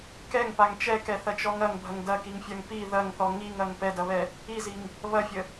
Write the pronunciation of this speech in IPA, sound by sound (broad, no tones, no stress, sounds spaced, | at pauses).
k ɛ ŋ p a ŋ t͡ʃ ɛ k ɛ θ ɐ t͡ʃ ɔ ŋ ɐ ŋ bʱ ɐ ŋ d ɐ k i ŋ fʲ a ŋ p i ð ɐ ŋ θ ɔ ŋ i ŋ ɐ ŋ p ɛ d ɐ β ɛ | i z i ŋ | β ɐ fʲ ə